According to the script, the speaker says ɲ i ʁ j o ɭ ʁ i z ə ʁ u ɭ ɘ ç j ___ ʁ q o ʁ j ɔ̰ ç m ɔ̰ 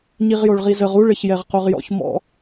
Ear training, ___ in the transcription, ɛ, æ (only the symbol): ɛ